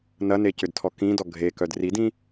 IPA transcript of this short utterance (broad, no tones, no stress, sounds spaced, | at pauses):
n ɐ n e c ʏ d tʰ ɔ k ĩ d ɔ ɡʱ e k œ d r i d ĩ